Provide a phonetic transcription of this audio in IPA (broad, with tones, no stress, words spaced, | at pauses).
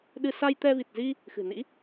ɗɨ˧ sa˧jt̪ɛ˧vi˨˩t̚zi˧ | xɨ̤˨˩nḭ˧˥